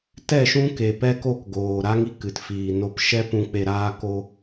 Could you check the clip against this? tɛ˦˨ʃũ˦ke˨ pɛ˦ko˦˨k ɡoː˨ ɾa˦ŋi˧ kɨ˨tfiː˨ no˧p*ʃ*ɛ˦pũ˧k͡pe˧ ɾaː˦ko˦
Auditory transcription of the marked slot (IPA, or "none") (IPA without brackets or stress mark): ʃ